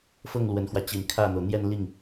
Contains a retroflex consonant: no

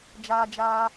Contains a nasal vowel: no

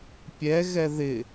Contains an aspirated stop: no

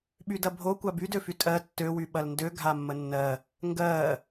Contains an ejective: yes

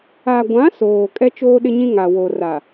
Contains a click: no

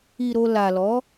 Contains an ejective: no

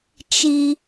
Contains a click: no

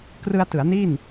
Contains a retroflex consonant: no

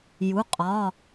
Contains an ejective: yes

